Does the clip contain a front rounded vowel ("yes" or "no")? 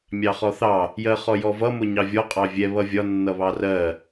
no